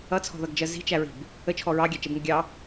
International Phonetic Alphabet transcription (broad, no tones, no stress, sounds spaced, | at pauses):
ʌ t͡sʰ ɔ̤ ð ʌ ɡ d͡ʒ ɜ z i̤ t͡ʃ æ ɹ i̤ b | ə t͡ʃʰ ɔ ɹ ɑ ɡʲ æ t͡ʃ ɛ b ŋ ə ɡʲ ɑ